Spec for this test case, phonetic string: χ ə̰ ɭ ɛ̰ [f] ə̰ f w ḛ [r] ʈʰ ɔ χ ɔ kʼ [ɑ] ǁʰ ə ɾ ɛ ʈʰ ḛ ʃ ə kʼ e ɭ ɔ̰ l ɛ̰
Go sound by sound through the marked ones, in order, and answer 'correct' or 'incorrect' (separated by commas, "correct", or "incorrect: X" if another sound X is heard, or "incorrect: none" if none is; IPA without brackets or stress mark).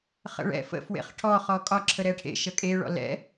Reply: correct, incorrect: χ, incorrect: ɒ